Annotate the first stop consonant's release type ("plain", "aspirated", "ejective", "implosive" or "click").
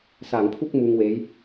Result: aspirated